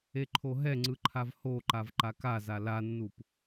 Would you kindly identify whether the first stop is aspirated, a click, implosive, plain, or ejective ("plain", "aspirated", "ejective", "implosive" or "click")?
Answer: click